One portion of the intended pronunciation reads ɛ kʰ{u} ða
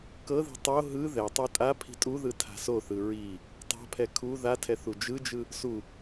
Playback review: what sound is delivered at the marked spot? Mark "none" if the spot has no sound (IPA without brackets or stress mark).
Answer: u